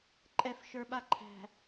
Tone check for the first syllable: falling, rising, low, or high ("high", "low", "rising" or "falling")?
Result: high